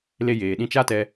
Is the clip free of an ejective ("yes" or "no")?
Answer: yes